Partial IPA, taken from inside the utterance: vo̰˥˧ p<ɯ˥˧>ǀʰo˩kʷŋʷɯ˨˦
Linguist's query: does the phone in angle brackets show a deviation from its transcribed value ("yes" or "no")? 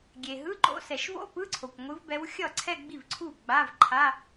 yes